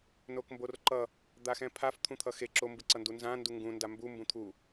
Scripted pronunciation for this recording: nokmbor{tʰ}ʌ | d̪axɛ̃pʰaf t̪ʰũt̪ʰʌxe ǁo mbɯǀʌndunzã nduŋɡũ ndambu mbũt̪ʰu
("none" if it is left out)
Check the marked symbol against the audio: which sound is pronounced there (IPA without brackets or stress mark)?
ǃ